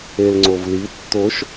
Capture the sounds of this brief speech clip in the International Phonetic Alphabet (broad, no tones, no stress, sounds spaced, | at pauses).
e l ŋ͡ǀ o v l i tː o ʃ